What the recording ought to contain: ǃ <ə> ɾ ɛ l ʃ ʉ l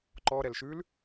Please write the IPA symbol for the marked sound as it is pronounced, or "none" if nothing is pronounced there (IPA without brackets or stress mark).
ɔ